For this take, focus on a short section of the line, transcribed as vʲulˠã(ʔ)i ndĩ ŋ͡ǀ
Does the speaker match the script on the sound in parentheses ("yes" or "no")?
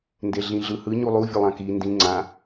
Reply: no